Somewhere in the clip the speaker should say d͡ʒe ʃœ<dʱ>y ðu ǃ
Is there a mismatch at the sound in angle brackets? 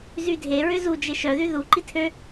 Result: yes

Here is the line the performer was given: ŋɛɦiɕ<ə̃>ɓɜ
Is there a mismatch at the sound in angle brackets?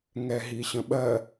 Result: no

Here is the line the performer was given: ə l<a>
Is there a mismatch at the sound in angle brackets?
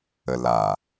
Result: no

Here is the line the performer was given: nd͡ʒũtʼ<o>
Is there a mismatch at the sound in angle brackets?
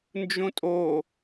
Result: no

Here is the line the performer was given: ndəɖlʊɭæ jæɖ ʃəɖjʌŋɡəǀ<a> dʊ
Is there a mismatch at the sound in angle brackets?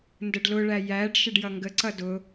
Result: yes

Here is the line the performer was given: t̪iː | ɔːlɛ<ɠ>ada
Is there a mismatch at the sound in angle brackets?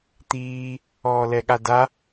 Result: no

